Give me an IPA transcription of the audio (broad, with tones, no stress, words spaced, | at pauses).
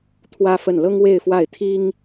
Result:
t̪ʰwä˥fə˥˩n lɤ˥ŋwe˥˧ɪ̯fwa˥˩ɪ̯ t̪ʰi˥ŋ